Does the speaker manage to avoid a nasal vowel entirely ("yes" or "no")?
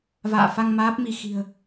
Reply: yes